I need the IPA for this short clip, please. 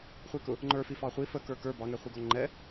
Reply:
χʷ i k ʊ | ŋ͡ǃ ə˞ f i f ɑ χʷ i f ə k ə˞ k ə˞ b ɑ ŋ ɛ χʷ i ɡ ɔ ŋ͡ǃ ɛ

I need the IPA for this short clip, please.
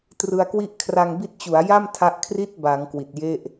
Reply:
t r ɯ˧ a̯ k w i˥˩ ʔ kʰ r a˧ ŋ b i˦˥ t̚ t͡ɕ u˩˦ a̯ j a˥˩ m tʰ a˦˥ ʔ kʰ r i˥˩ t̚ b a˩˦ ŋ k w i˨˩ t̚ j e˥˩ ʔ

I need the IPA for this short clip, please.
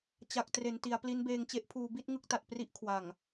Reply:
t͡ɕ a˨˩ k̚ t r e˩˦ n t i˩˦ a̯ p l i˦˥ n b eː˧ ŋ t͡ɕ e˦˥ ʔ pʰ uː˧ b i˥˩ t̚ ŋ ɯ˦˥ k̚ t a˨˩ t̚ p r i˦˥ ʔ kʰ w a˨˩ ŋ

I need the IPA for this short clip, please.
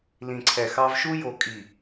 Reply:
l ĩ˨ ǀʰ ɛ˨ x ɑ˦ v ʃ u˦ j o˨ kʼ i˨

